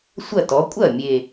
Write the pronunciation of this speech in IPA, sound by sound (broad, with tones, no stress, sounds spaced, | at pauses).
sʷ ɐ˥˩ t ɔ˩˥ kʷʼ ɐ˥˩ mʲ e˨˩